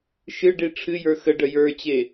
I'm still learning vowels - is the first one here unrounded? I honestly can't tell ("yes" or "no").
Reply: yes